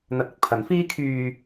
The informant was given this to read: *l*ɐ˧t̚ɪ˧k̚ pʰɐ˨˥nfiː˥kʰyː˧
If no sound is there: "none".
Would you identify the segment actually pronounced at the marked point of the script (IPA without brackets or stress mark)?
n̪